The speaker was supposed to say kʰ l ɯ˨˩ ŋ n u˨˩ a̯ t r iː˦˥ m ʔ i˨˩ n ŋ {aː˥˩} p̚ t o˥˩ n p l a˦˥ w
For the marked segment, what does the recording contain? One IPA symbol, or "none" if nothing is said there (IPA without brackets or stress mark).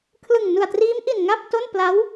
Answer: a˥˩